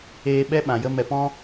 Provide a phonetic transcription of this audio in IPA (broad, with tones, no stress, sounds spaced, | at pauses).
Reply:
eː˧ ɓ ɛ˧ ɓ ã˨ j ə˧ m ɛ˨ p ɔ̃˦